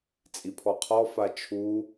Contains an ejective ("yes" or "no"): yes